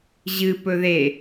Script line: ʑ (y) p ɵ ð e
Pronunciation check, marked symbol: incorrect: ɨ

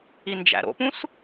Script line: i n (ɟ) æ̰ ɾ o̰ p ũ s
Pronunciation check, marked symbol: incorrect: d͡ʒ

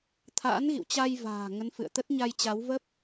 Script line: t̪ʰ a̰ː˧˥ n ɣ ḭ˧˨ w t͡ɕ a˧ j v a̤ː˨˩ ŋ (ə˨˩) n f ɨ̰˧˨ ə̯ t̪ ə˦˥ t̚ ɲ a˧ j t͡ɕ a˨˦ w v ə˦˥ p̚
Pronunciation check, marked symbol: incorrect: ə˨˦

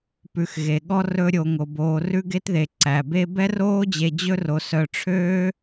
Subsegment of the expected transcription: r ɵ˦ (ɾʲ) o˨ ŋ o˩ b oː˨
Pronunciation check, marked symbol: correct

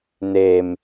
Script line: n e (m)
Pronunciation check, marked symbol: correct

